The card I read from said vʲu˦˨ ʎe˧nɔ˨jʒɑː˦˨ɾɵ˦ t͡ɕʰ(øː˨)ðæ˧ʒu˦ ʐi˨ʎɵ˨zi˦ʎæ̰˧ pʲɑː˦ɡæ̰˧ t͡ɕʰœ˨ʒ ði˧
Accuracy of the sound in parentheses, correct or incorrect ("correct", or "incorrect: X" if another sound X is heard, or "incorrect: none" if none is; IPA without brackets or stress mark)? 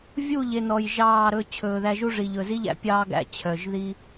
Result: incorrect: ɵː˨